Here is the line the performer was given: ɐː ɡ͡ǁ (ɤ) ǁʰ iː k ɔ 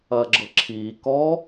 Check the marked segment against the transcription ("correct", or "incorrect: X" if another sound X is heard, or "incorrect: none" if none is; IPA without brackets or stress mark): correct